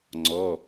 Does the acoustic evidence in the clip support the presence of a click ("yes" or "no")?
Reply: yes